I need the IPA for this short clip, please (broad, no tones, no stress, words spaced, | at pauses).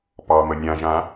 pɑmə nʲãʒã